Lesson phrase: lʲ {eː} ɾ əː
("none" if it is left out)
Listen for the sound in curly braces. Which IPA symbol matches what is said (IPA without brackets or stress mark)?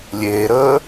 eː